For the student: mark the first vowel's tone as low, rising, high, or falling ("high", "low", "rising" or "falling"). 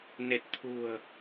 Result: low